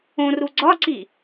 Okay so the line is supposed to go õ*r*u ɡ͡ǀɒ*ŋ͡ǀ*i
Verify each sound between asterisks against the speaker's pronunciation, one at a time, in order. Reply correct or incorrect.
correct, incorrect: ǀ

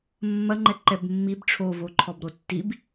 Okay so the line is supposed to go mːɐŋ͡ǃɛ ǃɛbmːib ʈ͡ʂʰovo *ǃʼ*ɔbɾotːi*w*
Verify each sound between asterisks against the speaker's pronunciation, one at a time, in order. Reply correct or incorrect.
incorrect: ǃʰ, incorrect: b

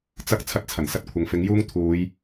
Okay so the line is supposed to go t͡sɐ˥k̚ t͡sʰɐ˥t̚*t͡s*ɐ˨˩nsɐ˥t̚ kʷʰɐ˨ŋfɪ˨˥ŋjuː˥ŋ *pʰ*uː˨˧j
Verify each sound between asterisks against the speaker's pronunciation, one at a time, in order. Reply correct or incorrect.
incorrect: t͡sʰ, incorrect: t̪ʰ

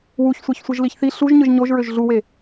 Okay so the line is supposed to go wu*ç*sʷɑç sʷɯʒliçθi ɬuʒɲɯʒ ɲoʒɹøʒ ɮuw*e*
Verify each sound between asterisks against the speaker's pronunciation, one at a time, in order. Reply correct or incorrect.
correct, correct

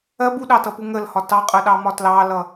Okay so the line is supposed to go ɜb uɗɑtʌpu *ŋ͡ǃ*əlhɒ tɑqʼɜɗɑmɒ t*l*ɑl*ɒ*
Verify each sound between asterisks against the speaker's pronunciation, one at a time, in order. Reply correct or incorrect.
incorrect: ŋ, correct, incorrect: ʌ

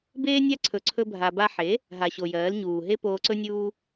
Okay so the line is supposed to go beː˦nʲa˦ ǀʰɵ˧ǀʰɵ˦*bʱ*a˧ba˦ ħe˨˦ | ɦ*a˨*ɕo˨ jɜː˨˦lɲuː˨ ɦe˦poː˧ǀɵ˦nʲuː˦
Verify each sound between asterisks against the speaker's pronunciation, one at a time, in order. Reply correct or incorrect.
correct, correct

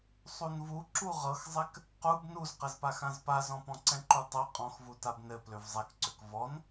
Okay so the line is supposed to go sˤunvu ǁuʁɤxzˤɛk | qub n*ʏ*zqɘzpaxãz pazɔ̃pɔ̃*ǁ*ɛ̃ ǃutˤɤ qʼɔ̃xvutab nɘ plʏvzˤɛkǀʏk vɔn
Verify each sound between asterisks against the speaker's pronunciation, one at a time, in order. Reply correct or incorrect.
incorrect: u, incorrect: ǀ

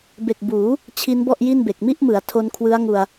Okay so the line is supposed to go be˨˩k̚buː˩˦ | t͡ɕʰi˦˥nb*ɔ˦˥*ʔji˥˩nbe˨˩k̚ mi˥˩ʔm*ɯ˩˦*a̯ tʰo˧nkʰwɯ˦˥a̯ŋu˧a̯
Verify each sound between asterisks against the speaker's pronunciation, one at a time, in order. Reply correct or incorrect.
incorrect: ɔ˥˩, correct

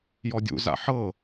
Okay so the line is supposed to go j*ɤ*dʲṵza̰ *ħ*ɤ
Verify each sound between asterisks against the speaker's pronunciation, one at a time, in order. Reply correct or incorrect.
incorrect: ɔ, correct

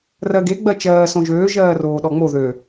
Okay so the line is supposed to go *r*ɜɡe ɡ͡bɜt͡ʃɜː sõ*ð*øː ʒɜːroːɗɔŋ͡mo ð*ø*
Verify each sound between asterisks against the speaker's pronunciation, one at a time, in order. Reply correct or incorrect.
correct, incorrect: ʒ, correct

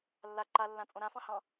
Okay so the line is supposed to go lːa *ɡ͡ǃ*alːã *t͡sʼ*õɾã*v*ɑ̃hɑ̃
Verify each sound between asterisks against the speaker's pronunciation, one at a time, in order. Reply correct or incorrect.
incorrect: ǃ, correct, incorrect: f

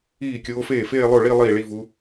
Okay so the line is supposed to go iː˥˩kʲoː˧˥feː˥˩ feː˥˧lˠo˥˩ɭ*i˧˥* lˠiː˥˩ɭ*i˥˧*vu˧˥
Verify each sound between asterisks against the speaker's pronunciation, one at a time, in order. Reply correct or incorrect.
incorrect: i˥˧, correct

